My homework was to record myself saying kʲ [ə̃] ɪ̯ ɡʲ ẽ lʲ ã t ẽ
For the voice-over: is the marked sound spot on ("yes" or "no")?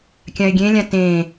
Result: no